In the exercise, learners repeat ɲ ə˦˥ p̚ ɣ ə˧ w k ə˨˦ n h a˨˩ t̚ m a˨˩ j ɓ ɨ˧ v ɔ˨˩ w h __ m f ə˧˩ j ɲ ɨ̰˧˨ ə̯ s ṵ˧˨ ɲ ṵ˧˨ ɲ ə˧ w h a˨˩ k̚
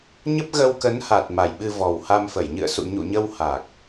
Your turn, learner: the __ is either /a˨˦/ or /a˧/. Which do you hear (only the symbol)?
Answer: a˧